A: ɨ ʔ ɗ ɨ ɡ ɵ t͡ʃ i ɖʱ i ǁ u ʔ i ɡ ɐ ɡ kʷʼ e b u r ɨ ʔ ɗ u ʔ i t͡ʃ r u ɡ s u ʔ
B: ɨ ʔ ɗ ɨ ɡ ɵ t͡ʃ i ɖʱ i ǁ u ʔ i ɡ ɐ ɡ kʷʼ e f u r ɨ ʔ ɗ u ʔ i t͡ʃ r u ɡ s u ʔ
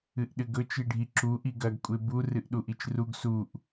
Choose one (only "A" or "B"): A